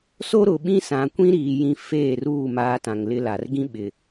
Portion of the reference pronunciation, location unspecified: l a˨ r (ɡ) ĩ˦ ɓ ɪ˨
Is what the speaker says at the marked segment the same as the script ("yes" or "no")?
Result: yes